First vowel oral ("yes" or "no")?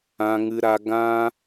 no